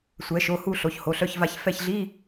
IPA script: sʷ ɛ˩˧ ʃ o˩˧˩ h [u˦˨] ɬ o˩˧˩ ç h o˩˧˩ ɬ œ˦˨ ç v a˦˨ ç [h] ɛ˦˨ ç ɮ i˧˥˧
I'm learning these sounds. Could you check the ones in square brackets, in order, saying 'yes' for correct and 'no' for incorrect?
yes, no

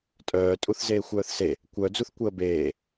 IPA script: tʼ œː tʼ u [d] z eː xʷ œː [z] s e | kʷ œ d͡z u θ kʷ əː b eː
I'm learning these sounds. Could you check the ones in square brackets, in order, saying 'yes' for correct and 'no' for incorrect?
no, no

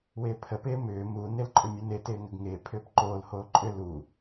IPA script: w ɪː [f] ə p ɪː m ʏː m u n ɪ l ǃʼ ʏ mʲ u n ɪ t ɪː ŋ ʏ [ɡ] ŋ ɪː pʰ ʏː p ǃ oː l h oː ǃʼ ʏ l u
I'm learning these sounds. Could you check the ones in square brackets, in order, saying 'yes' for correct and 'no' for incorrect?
no, yes

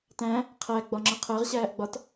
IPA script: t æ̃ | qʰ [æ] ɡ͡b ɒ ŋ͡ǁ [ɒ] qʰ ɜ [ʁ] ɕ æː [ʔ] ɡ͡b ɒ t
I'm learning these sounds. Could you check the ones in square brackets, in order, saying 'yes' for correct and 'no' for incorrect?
yes, no, yes, yes

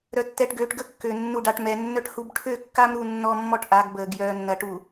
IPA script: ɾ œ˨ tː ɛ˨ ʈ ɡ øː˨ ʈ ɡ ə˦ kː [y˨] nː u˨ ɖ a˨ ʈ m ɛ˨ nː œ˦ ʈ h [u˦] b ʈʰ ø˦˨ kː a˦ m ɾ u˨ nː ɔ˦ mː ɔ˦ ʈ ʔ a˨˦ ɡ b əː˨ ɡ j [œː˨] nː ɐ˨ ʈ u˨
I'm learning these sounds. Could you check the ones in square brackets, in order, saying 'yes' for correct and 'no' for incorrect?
no, yes, yes

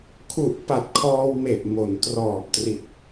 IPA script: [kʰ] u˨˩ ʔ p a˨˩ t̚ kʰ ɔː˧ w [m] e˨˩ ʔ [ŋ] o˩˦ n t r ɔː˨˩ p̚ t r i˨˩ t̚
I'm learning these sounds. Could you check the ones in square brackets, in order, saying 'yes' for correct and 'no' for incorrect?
yes, yes, no

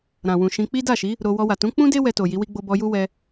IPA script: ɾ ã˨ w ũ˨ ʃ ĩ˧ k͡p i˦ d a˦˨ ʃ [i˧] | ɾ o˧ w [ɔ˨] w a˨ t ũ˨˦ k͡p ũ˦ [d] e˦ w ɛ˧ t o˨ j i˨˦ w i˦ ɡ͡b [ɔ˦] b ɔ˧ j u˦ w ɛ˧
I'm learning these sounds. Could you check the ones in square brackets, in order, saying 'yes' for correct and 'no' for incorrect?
no, no, yes, no

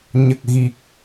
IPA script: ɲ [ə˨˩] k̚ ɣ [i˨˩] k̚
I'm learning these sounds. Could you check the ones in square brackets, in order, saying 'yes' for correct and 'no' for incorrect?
yes, yes

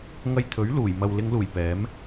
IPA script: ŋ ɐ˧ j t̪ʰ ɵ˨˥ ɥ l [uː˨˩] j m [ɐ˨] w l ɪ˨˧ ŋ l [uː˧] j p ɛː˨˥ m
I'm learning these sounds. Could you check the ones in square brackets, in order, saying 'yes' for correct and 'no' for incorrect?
yes, yes, no

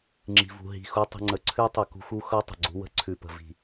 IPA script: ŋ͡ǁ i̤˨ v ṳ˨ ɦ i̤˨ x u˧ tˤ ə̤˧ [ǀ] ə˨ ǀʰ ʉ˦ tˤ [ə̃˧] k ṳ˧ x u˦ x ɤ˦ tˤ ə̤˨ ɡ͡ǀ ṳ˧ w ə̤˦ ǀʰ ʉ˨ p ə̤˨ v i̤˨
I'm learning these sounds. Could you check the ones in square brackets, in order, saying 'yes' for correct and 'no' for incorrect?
no, no

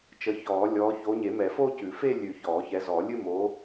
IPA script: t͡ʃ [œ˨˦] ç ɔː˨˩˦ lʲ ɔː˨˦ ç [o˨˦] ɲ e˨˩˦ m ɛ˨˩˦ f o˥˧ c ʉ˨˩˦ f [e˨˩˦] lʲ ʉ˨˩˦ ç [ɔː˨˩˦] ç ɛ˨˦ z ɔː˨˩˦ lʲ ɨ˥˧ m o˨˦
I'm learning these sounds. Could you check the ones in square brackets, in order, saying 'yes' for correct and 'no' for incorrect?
no, yes, no, yes

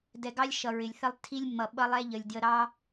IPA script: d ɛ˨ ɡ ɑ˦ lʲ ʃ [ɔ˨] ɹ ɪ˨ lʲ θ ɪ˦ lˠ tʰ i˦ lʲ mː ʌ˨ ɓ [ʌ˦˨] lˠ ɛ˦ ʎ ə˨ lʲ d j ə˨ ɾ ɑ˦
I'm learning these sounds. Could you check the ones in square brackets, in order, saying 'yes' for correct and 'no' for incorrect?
no, no

